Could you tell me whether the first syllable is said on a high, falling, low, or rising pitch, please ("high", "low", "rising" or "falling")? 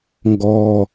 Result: low